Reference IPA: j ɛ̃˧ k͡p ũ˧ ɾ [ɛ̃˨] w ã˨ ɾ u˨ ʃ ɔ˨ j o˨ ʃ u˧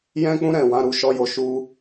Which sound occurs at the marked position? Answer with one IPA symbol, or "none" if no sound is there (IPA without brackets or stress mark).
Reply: ɛ̃˨